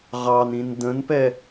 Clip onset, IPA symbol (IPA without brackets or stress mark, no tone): ʁ